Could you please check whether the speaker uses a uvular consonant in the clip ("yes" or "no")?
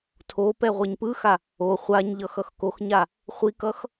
yes